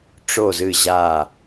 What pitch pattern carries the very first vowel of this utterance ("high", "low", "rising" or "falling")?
low